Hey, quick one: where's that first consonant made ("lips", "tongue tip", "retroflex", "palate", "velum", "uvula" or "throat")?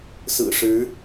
tongue tip